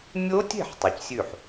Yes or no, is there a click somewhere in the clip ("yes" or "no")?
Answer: no